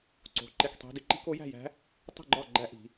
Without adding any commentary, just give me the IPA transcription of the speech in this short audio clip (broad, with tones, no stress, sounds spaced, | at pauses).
ǀ o̤˦˥ ǃ e˥˧ k tˤ i̤˦˥ d i˦˥ ǃ i̤˦˥ k o˦˥ j æ̤˥˧ j æ̤˦˥ | tˤ i̤˥˧ ɡ͡ǃ ɒ˥˧ ɡ͡ǃ æ˦˥ ʔ i̤˦˥